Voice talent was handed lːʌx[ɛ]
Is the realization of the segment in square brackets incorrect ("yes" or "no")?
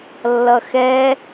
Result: no